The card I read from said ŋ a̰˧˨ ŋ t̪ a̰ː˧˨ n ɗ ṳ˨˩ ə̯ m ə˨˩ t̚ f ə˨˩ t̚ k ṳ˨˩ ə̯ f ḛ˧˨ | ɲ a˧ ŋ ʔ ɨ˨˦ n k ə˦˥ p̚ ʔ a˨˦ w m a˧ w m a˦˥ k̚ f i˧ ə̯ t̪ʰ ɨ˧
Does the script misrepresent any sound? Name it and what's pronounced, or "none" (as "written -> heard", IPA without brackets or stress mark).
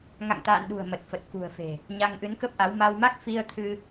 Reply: ḛ˧˨ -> e̤˨˩